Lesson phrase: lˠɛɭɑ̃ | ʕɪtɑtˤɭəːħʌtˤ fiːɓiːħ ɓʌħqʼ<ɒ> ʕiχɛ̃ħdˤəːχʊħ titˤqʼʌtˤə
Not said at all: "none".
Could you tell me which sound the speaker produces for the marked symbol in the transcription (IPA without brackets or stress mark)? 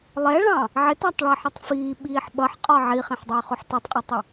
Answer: ɒ